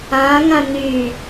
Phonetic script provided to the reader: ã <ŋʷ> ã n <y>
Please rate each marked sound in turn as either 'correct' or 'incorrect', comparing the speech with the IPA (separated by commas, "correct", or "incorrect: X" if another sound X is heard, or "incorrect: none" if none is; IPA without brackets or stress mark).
incorrect: ŋ, correct